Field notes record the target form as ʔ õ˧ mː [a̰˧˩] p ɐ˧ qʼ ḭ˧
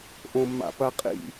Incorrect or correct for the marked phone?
correct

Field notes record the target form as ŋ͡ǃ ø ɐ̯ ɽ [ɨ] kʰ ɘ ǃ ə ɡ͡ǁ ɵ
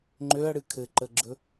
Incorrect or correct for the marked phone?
correct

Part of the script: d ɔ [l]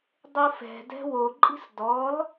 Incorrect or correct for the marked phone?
correct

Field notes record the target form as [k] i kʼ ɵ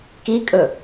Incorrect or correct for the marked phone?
correct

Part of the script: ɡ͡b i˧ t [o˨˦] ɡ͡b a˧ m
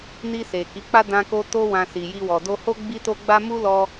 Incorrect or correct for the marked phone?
incorrect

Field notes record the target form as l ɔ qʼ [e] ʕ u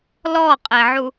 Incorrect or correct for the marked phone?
correct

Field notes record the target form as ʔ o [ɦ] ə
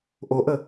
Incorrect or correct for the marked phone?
incorrect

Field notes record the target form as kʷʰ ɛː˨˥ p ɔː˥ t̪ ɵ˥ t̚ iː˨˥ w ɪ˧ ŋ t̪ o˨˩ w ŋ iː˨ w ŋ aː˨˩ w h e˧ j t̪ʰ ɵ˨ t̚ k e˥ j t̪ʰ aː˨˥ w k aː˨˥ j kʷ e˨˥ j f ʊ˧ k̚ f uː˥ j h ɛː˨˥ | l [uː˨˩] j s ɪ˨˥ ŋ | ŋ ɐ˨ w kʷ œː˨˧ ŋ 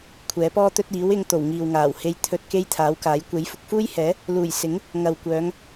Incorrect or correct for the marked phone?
correct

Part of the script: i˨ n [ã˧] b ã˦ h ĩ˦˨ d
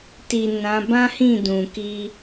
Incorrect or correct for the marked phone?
incorrect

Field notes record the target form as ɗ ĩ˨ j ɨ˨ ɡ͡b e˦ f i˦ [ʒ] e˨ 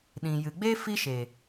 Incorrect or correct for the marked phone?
incorrect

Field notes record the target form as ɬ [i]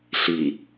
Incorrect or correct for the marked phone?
correct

